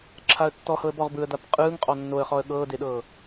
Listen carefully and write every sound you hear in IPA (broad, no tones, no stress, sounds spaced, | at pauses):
ǁʰ a ə̯ tː ɔ h ɤ ə̯ b ɔ ʁ b ɯ ə̯ d a p qʼ ɯː ŋ qʼ ɔ nː o ə̯ χ ɔ ə̯ ɠ ɤː d e ɗ ɤː